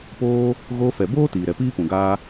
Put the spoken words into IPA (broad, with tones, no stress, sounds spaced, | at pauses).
p oː˦ | ɣ oː˧ f ɛ˨ b oː˦ t iː˨ ɾ ɛ˨ p iː˦ p ũ˨ ɡ aː˧